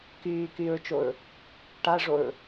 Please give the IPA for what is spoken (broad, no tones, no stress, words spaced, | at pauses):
kyːkyːɹt͡ʃoɹ | ʈaʐoɹ